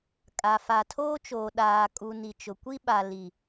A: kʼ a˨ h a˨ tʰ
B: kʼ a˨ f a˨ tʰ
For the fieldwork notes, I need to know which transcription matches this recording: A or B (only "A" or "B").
B